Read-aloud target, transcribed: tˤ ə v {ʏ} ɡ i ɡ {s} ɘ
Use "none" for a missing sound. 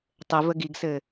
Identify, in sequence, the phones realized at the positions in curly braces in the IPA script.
ə, s

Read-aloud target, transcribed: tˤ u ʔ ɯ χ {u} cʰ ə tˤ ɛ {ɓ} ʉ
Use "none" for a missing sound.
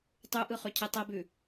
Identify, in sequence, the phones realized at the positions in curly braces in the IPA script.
ʉ, b

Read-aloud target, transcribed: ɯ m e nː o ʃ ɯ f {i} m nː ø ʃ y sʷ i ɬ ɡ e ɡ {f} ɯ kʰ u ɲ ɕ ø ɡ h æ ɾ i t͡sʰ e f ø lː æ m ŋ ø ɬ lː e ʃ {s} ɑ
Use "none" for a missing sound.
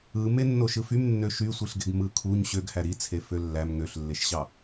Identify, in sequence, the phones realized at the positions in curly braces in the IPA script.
y, m, ɕ

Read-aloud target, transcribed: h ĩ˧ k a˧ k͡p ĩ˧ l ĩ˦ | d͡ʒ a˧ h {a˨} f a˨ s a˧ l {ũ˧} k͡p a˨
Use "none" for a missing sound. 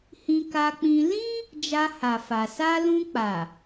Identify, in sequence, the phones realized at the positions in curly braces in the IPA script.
a˨, ũ˧

